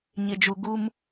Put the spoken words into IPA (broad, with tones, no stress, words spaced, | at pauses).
ɲɪ˨d͡ʒu˨ ɡu˦m